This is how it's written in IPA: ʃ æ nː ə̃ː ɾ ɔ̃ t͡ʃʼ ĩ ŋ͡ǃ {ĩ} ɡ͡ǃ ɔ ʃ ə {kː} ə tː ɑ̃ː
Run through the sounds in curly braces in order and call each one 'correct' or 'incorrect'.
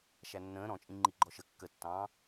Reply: incorrect: i, correct

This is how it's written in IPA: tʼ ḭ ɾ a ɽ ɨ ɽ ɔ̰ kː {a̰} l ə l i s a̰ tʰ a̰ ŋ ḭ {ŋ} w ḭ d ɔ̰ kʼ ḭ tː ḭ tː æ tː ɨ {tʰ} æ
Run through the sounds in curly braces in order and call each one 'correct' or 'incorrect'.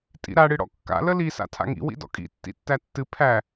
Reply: correct, incorrect: none, incorrect: pʰ

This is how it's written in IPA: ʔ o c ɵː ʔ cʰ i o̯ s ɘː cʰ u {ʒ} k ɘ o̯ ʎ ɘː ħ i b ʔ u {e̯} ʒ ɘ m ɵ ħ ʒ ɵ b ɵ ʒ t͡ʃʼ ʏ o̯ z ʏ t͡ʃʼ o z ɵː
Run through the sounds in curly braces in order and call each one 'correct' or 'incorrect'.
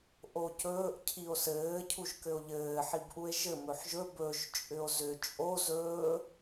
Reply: correct, correct

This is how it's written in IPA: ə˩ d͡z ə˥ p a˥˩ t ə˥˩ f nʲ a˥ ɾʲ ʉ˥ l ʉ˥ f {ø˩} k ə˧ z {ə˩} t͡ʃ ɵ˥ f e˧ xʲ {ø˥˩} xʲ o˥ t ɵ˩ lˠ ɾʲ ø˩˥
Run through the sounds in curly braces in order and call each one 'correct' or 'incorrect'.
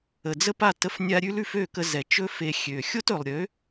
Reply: incorrect: ø˥˩, incorrect: ɛ˩, incorrect: ø˩

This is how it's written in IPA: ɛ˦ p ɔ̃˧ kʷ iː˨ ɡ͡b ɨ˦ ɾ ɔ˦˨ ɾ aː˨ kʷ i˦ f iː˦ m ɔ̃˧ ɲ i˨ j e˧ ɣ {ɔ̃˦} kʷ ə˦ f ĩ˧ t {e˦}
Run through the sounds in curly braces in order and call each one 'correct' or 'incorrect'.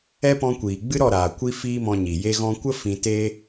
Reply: incorrect: ɔ̃˧, correct

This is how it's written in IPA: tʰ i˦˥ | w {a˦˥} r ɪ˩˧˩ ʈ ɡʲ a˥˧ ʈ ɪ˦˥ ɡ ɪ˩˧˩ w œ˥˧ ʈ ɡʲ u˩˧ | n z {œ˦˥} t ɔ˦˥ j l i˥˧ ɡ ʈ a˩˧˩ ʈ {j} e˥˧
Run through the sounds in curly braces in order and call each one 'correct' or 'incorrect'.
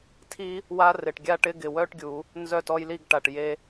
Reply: correct, incorrect: œ˥˧, correct

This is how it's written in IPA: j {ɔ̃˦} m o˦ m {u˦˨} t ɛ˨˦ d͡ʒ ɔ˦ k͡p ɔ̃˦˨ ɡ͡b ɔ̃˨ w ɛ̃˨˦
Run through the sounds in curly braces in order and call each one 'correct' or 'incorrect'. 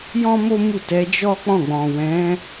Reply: correct, correct

